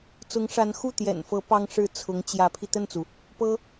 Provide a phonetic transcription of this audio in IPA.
t͡sʊ˧˥ŋʂa˧˥n xu˥˩ t̪jɛ̰˨˩nfɤ˧˥ pɑ˥ŋʂɻ̩˥˩ t͡sʰʊ˧˥ŋt͡ɕjä˧˥pʰi˧ t̪ə˥˩nt͡su˩ | pɤ˥

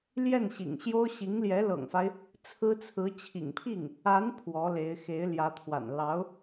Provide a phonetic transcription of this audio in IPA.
ljɛ˥˩nɕḭ˨˩ŋɕjo˥ʊ̯ ɕi˧˥ŋljɛ˧˥ lɤ̰˨˩ŋfa˦ɪ̯ | t͡sʰɹ̩˥t͡sʰɹ̩˧˥ t͡ɕʰḭ˨˩ŋpʰi˥˩ŋ | a˧˥n pʰwɔ˧˥le˧˥ɪ̯xe˧˥ɪ̯ ljä˧˥t̪ʰwa̰˨˩n lɑ˧˥ʊ̯

